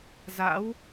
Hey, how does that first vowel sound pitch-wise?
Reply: rising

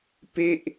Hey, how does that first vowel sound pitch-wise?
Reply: falling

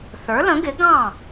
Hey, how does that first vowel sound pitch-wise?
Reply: rising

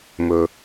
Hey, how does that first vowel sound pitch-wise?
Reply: high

